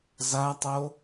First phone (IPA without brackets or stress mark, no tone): z